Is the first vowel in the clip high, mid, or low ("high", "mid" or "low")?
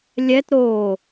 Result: mid